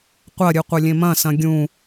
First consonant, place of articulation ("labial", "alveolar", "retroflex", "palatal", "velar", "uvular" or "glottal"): uvular